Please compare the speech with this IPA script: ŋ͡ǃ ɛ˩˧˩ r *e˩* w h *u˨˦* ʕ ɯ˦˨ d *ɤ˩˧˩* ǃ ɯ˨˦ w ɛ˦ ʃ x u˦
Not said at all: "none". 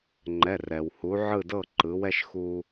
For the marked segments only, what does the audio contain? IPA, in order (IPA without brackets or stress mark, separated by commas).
ɛ˩, u˨˦, ɤ˦˨